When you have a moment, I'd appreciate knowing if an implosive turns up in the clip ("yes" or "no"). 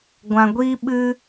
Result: yes